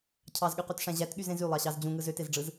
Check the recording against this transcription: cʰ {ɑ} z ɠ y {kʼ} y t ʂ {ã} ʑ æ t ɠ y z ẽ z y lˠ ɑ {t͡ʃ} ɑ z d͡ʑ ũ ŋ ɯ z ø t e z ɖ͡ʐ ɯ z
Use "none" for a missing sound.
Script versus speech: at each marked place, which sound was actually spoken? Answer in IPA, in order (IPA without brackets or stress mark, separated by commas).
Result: ɑ, q, æ̃, ɕ